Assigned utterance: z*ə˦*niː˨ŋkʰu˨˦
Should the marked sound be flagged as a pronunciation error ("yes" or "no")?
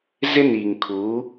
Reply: yes